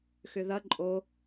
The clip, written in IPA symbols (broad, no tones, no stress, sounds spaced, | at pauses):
x ʏ ð ɐ ǃʼ o